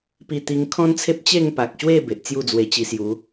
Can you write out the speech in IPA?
p i˥˧ t̪ i˦ ŋ kʰ ɔ̃˦ n t͡sʰ e˦ p̚ t͡ɕ e˥˧ ŋ p a˨ k̚ ɕ w e˥˧ b e˨ ʔ t͡s j u˥˧ d͡z w e˧ t͡ɕ i˧ s j u˨˦

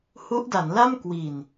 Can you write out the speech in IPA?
h u˦˥ ʔ d a˩˦ n l a˥˩ m k w iː˨˩ n

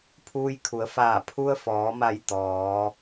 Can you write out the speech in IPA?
pʰ uː˧ j kʰ u˩˧ ə̯ f aː˧˩ pʰ u˧ ə̯ f ɔː˩˧ m a˧˩ j t̪ ɔː˩˧

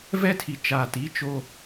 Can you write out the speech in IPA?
v ɛ˦ tʰ i˨ t͡ʃ aː˨ t i˨˦ t͡ʃ o˦

